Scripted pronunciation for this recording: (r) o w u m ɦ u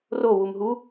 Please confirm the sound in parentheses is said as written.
yes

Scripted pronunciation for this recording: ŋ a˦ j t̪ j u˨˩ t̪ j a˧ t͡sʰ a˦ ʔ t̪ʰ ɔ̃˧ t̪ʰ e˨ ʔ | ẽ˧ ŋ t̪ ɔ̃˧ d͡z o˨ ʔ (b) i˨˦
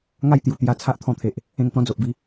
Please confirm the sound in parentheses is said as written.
yes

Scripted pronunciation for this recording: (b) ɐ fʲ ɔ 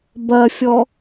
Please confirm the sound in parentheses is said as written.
yes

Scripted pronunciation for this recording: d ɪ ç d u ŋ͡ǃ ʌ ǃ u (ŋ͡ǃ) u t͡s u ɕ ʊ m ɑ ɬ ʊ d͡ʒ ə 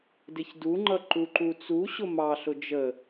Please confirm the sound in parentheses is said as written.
no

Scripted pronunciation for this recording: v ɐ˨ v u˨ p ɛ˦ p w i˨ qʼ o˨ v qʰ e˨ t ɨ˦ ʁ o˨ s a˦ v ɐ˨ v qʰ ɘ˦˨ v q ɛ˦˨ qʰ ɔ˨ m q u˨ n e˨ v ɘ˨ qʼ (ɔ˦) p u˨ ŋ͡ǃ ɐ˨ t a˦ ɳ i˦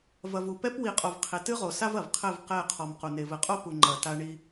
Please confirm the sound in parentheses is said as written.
no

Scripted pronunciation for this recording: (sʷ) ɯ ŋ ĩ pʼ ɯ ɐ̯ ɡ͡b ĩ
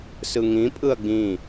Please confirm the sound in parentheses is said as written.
no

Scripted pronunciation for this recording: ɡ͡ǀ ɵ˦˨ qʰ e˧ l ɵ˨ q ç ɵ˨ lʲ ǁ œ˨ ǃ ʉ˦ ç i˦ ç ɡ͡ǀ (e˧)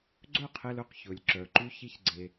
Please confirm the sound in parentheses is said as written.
yes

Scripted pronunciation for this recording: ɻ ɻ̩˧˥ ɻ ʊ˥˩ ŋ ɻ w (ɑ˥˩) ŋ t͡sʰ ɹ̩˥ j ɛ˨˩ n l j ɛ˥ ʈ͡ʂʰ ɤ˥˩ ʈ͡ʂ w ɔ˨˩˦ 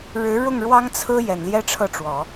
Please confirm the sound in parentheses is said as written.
no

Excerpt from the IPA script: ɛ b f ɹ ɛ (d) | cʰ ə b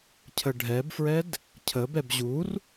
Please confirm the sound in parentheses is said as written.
yes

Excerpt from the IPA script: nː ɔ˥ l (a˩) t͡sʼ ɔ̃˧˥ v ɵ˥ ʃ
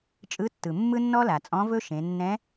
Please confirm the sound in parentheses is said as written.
yes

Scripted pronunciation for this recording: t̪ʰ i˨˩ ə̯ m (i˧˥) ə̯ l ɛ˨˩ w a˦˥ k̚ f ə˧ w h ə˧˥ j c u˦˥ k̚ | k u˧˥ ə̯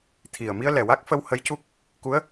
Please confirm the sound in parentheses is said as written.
no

